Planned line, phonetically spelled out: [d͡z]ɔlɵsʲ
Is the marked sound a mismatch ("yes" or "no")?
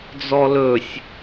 no